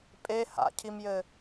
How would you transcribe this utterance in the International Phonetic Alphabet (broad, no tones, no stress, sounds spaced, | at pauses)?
pʼ e h a̰ cʰ i m j ɘ